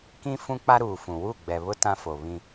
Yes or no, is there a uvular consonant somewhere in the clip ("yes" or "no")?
no